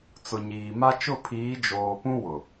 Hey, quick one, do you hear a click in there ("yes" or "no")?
no